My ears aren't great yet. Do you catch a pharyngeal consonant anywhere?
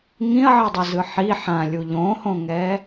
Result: yes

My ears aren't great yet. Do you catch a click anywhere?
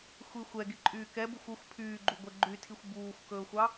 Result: yes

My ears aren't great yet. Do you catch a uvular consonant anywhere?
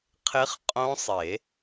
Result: yes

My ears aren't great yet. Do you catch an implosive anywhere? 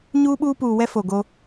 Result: yes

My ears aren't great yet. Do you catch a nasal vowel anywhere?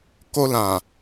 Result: yes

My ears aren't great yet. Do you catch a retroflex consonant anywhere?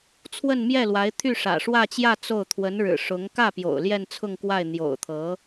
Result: yes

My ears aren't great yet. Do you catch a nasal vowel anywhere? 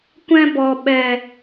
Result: yes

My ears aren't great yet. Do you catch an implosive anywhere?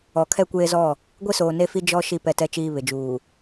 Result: no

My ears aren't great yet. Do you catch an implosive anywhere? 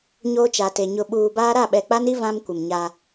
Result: yes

